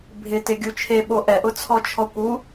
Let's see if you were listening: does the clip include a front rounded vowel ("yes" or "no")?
no